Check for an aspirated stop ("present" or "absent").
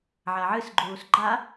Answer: absent